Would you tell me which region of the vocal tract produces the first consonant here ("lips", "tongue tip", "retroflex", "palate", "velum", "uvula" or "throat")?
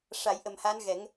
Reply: retroflex